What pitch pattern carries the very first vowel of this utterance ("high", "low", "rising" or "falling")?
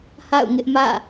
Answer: falling